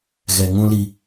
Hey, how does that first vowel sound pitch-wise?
low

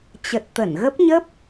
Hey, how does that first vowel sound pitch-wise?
low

